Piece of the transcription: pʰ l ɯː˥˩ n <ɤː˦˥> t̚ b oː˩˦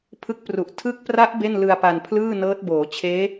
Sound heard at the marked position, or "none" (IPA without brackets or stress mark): ɤː˦˥